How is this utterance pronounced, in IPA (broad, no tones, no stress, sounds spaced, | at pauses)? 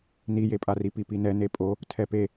n i j e pʼ a r i p i p i n ɛ n e pʼ o | tʰ ɛ p e